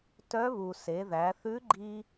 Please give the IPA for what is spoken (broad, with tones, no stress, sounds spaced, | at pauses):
t œ˧˥ β u˩ s e˩˧ ð æ˩˧ θ ʉ˧˥ ɡ͡ǃ i˧